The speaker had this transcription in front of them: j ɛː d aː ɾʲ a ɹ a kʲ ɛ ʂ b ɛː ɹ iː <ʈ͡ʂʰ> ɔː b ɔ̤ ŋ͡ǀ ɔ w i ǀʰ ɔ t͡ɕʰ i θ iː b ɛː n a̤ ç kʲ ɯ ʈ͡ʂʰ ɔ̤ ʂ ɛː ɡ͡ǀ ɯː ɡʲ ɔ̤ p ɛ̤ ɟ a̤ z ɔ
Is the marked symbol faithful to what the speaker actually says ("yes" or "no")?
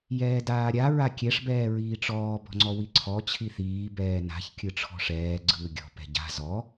no